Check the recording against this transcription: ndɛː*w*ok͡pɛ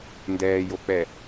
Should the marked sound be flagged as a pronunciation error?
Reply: yes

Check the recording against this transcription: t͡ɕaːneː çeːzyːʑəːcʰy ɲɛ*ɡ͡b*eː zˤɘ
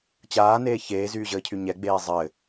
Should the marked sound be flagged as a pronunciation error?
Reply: no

